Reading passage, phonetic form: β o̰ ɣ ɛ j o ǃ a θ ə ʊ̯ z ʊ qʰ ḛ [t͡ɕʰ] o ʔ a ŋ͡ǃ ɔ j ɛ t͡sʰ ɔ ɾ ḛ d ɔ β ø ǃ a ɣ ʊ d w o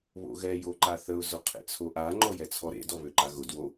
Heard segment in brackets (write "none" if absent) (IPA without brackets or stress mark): t͡sʰ